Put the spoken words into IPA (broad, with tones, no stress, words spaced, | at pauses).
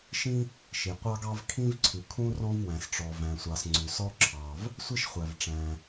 ʃĩ˥ | ʃi˩ qʷɑ˥ɡɑ˥v kʰĩ˥vǀʰʉ˩kʰũ˥ rɔ̃˥vwæ̃˩sʈ͡ʂɔ˩ væ̃˩sʷɑ˩s ŋ͡ǀʉ˩sɔ˥ ǁʰɑ˩v | sʷi˥ʃ χʷæ˩v ʈ͡ʂæ̃˩